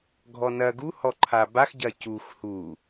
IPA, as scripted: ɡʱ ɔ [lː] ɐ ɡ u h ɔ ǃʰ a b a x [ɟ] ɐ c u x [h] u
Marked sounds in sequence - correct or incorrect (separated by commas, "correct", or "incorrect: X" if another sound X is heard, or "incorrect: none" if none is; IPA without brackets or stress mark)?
incorrect: n, correct, correct